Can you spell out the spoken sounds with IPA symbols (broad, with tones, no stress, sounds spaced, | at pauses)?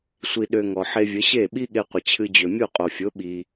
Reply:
sʷ i˧ ɗ ø˧ ŋ ɔ˩ ħ e˧ vʲ ə˩˥ ɕ e˥˩ ɓ i˥ ɠ e˧ qʷ ə˩ t͡ɕʰ ɨ˧ d͡ʑ ø˩ mʲ u˥˩ qʼ o˩ fʲ o˩˥ ɓ i˩